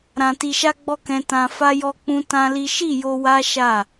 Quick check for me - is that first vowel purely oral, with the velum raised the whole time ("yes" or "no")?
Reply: no